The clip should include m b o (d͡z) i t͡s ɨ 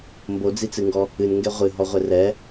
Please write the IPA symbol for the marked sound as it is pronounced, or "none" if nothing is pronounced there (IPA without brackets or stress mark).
d͡z